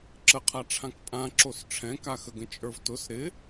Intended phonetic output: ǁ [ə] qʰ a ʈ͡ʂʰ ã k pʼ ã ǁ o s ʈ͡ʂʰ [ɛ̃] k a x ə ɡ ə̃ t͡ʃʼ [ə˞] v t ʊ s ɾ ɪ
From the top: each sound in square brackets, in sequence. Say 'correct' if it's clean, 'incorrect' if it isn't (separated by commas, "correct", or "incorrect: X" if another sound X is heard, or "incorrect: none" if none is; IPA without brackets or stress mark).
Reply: correct, correct, correct